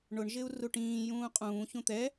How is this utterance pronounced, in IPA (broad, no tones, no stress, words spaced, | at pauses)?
ɳʊɳʒɪu̯ru ʈĩːjũː qʼũːçũ t̪ɛ